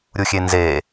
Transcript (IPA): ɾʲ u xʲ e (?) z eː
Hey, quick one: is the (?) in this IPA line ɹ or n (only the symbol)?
n